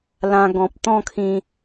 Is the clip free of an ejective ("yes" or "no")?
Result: yes